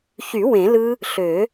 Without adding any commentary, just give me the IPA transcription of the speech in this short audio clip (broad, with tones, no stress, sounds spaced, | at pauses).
ç y˨˩˦ w ẽ˨˩˦ l ɯ˦˥ | ɬ ø˨˩˦